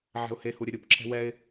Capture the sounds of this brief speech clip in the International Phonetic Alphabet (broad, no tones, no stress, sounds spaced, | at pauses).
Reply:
ʕ ɛ̤ ʊ̯ h e h u ɾʲ ɘ ɾʲ u p ǁʰ ɛ̤ w ɛ ɪ̯